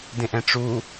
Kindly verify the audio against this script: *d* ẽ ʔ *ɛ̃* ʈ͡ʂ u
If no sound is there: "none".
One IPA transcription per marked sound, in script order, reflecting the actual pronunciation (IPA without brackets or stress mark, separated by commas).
d, ɛ̃